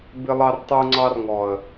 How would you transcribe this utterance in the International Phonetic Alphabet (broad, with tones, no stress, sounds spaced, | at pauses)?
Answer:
b ɪ˦ lˠ ɑ˦ r tˤ u˦ ŋ͡ǀ ɑ˦ r ŋ ɔ˨ ə̯